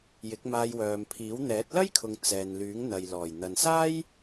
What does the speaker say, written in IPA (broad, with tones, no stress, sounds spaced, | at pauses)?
j ɪ˨˥ k̚ m aː˧ j w œː˨ m pʰ iː˨˥ w n̪ ɛː˨˥ t̚ l ɐ˥ j kʰ ʊ˨ ŋ t͡s ɛː˨ n l yː˨˥ ŋ n̪ ɐ˨ j l ɔː˨˩ j n̪ ɐ˨ n s aː˥ j